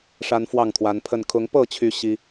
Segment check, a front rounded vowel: present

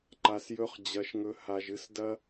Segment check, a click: present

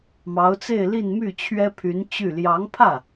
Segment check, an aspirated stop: present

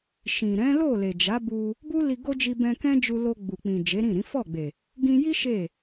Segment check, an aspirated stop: absent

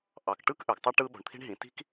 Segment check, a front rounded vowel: present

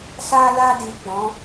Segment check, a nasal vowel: present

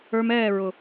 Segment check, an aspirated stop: absent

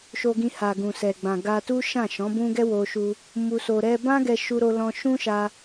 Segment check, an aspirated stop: absent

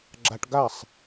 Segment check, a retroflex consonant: present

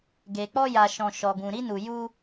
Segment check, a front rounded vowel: absent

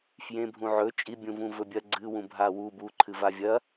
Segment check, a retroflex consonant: absent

